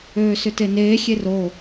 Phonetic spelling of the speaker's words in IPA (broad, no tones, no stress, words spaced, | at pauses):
øːsʏteneː xʲero